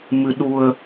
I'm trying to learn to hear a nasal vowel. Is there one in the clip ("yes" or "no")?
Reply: no